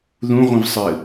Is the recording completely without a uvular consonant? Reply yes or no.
no